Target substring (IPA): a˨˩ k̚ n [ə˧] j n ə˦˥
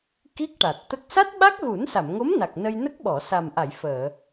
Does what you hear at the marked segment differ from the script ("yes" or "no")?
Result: no